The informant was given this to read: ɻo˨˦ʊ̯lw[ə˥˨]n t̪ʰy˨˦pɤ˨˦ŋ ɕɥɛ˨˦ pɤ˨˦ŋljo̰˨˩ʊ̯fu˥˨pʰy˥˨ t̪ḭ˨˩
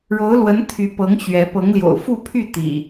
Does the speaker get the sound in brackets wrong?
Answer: yes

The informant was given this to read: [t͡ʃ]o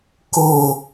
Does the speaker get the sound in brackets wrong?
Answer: yes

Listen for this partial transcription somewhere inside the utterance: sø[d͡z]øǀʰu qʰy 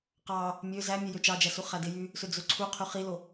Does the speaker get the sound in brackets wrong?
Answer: no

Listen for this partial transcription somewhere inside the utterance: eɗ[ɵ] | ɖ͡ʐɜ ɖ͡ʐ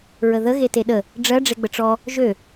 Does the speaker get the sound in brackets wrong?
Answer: yes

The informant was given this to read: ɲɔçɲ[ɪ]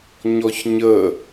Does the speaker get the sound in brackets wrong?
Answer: yes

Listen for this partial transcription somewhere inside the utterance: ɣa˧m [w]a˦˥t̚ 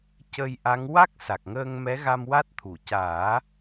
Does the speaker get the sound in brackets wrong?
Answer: no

